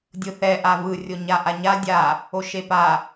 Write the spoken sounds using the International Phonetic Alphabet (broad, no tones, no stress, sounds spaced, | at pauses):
dʲ ɯ θ ɛ ʔ a v ɯ rʲ o ɲ a ʔ a ɲ a dʲ a | o ʃ e p a